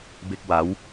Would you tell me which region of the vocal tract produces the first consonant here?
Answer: lips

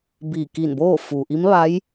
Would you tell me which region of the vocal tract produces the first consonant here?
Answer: lips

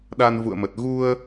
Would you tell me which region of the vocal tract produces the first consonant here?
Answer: tongue tip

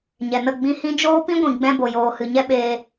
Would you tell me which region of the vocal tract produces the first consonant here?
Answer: palate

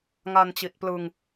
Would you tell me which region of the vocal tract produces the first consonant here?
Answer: velum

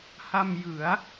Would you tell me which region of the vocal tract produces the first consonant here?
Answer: throat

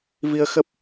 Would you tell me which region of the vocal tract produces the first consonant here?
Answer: lips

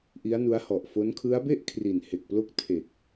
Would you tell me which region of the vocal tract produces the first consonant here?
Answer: throat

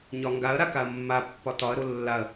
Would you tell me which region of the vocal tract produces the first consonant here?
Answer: palate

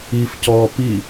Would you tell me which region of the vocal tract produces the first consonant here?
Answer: lips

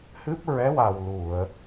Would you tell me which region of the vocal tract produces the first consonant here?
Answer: throat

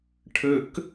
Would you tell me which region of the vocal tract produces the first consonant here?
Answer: retroflex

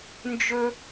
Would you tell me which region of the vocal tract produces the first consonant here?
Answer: tongue tip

